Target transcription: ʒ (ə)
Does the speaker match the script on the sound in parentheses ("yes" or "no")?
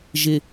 no